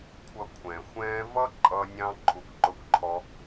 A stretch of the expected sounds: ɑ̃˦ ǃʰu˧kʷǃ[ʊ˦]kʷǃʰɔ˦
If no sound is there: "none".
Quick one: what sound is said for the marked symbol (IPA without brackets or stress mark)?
ʊ˦